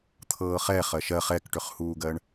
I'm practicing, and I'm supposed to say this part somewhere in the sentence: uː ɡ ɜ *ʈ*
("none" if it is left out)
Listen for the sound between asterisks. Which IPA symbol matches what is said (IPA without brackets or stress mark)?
ɳ